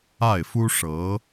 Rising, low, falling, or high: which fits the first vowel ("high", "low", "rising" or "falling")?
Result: falling